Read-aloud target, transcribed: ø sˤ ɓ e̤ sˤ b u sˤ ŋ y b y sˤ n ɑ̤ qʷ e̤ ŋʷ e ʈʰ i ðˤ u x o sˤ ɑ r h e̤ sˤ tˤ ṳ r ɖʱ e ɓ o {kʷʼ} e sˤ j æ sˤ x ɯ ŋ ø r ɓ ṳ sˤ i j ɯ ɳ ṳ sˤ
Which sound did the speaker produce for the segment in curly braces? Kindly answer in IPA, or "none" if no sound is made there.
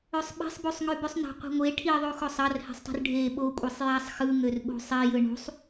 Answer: kʷʼ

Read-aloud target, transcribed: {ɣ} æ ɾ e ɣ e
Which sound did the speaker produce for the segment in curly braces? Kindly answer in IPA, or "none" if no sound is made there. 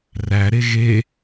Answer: r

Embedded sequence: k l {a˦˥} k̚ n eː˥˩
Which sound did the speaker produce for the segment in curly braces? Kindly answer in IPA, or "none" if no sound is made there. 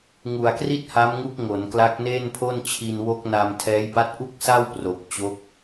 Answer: a˦˥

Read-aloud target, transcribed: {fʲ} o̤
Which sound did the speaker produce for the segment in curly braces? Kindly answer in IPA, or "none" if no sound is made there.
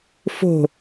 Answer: f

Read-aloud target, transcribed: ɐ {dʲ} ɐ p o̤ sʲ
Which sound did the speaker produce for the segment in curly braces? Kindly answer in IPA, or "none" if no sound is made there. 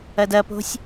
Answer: d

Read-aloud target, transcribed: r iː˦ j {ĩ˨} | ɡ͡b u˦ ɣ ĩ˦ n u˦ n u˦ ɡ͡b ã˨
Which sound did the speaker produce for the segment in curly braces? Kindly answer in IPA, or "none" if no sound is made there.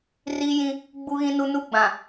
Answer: ĩ˦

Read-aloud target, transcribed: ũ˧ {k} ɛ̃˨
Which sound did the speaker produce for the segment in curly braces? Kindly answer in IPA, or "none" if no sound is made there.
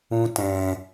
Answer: t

